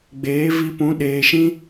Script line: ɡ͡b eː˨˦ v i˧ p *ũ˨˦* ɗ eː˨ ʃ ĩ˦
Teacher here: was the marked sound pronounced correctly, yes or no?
yes